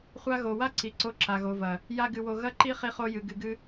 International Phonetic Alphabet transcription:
χʷa˧ɣo˨wa˦ ǀi˨ǀo˧ǁa˨ ɣo˨vɐ˨ | ja˦ɡɨ˧wo˧ ɣɐ˦ǃi˦ χi˦χo˦jɨ˧ ɡɨ˧ɡɨ˦

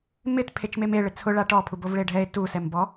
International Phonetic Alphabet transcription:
mɪt pʰet͡ʃmeme ɭɪt͡sʰʊ ɭaʈɔ pʰubovɭeɖʱɛe̯ tu sɛmbɔ

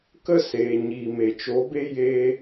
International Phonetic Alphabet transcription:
kə˦seː˨ ɲiː˨me˨t͡ʃo˨˦be˦ je˧

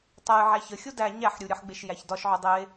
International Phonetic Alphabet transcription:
tˤɛj ʕæçəxʲo dæ ɲæħ ɾʲuɾʲəħɡ͡beʃ jæçdɒʃʕo dˤe

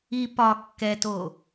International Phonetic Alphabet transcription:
i pɒ kːɛto

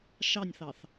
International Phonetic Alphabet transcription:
ʃɑnʲθɑθ

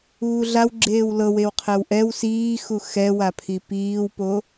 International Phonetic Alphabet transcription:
uːɮaw ɡ͡ǁeːwlɤwew qʰɛwʔɛw siː xuxɛwapʰi piːwpo

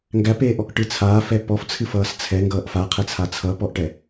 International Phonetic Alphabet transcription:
ŋɡæpeːʔɔk ʈɨt͡sʰaːf ɛpɔf t͡sʰɨfʌːst͡sʰɛ ŋɡʌːʔfaqʰɛt͡sʰa t͡sʰʌpɔʔʈɛ

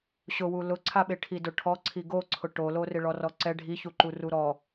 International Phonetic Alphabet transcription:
ɕʊwu lʊǀʰaɓe ʈʰidʊʈʰɔǀʰi ɡoǀʰʊ ʈolorɪ ɭɔrɔǀɛ ɖʱiçuǃu ruɾɔ

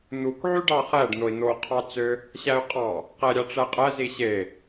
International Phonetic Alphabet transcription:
n̪uk ʕyɖɑχæɖ n̪oi̯n̪o qʰɑt͡sø | ɕæy̯qʼɑ | qæɾʲɑʈ͡ʂæqʼæ ziɕe

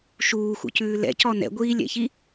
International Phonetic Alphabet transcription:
ʃuːxṵcʉː lɛ̰cɔ nɛ̰ɡʷiːlʲɛ̰çi

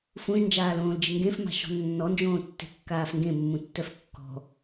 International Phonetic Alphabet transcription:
fũʒnd͡ʒaːlõːld͡ʒɪ ŋɡẽfma̤ʃɔ̤ nːɔnd͡ʒõːtːe̤kːaːf ŋɡẽmːũtːœf kːɔ̤

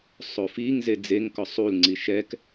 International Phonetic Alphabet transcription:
sˤofiŋ zed͡zeŋkɔ sˤul ŋ͡ǀiʃɛk

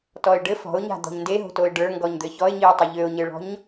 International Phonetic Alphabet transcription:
tɔɪ̯ɖɘ fɔ̤ʊ̯ɲa̤d̪ɔ̤ɲ ndeɦo̤toɪ̯ ɖə˞ŋɡɔɲ d̪ɘçɔɪ̯ɲiʊ̯ tˤɘʎøʊ̯ɲɘɭɔ̤ɲ

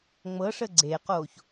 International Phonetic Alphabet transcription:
ŋ͡mɤʂə ɡ͡ǀeːqoːç

